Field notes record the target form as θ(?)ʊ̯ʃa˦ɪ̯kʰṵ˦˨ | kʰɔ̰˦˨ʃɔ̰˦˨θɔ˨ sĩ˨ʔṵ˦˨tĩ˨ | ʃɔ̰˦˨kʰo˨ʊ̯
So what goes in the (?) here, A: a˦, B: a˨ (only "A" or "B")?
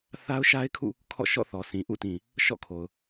A